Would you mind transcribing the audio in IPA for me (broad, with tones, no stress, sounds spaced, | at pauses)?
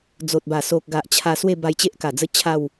d͡z o˨ t̚ b a˨˩ s o˨ k̚ ɡ a˨ ʔ t͡ɕʰ a˧ s w e˥˧ b a˧ j t͡ɕ e˦ ʔ k a˨˩ d͡z ə˦ t͡ɕʰ a˥˧ w